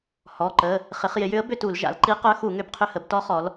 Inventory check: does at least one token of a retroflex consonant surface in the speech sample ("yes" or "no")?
no